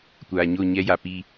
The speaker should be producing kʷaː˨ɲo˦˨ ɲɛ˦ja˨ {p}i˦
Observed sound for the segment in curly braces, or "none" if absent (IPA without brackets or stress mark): p